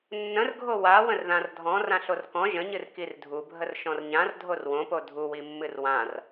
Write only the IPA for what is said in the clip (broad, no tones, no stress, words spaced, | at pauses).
nːə̃rɡʱo wa wə̃rðãrdʱɔ̃ rãɬorkɔ̃ ʒə̃ɲɨr kirdʱubʱər ʃɔ̃rɲãr dʱorwõpo dʱuwi mːɨrwãr